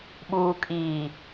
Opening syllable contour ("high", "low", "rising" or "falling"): low